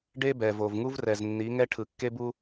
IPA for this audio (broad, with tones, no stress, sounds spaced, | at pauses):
ɖ e˦ b ɛ˨ v o˨ v ŋ u˦ v r ɛ˨ z nː i˨˦ ŋ ɛ˦ ʈʰ ɯ˨ kː e˦ b u˦